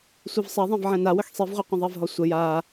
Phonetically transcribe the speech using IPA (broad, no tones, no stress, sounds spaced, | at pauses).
sʷ i v sˤ ɛ ðˤ ɛ̃ v ʕ ɛ̃ n a w ə x sˤ i v ʁʷ ɛ qʷ ə̃ ðˤ ɛ v ɦ ɔ sʷ ə j a